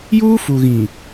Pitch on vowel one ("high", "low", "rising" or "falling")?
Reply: high